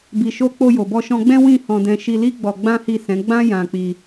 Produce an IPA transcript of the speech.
b i˨ ʃ o˧ k͡p o˧ j o˨ b ɔ˧ ʃ ɔ̃˧ ɡ͡b ɛ̃˦ w ĩ˦˨ h ɔ̃˧ d ɛ̃˧ ʃ i˧ l i˦ ɡ͡b ɔ˧ ɡ͡b ã˦ h i˦˨ s ɛ̃˨˦ ɡ͡b ã˦ j ã˧ k͡p i˧

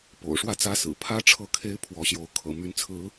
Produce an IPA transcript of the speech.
p o̰˨˩ ʊ̯ ʂ w ä˥˨ t͡s ä˦ s ɹ̩˨˩ pʰ ä˦ ʈ͡ʂʰ ɤ˥˨ kʰ e˦ ɪ̯ pʰ w ɔ˨˦ ɕ j o˨˦ ʊ̯ kʰ ɤ̰˨˩ m y˨˦ n t͡sʰ ɹ̩˨˦

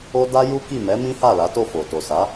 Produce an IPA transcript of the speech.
o˧ d a˦ j u˦ k i˦˨ m ɛ˨˦ m ĩ˦ h a˦˨ l a˨˦ t o˦˨ f o˨ t o˨ s a˨˦

